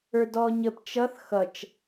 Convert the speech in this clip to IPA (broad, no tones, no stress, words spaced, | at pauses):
ə˞dɔːɲəp t͡ʃʌθ xʌt͡ʃ